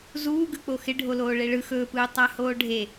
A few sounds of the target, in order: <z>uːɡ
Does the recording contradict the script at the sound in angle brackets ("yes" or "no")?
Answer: no